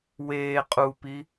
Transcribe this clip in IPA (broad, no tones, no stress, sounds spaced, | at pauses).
w eː qʼ u p i